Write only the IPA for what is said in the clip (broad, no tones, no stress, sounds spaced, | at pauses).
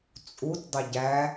t͡sʼ u t dˤ ɪ ɟ æ